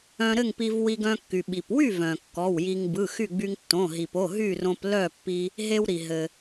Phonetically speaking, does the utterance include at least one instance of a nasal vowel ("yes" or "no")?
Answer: yes